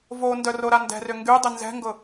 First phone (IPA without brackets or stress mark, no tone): v